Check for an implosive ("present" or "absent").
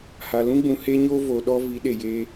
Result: present